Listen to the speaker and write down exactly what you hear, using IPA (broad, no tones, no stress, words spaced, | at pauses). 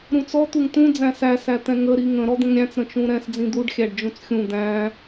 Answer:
ɾũt͡sɔ t̪uŋt̪ũ d͡zæ̃sæ sæt̪ɛ̃ŋə ɾiŋə̃ ɾɔd̪ə̃ŋɾʲæ̃t͡s ɾə̃t͡ʃũɾɛ̃s d͡zĩd̪uɖ xʲæɖd͡ʒũt͡sxʲũ d̪æ̃